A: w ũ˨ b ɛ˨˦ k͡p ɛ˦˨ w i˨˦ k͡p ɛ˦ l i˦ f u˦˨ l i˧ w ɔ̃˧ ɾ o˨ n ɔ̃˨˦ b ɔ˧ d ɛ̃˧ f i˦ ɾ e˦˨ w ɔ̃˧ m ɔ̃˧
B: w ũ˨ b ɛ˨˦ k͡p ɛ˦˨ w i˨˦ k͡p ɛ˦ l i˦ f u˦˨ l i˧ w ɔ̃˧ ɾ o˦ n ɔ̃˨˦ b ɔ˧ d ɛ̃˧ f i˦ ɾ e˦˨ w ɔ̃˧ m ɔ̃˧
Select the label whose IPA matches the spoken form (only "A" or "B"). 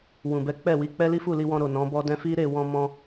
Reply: A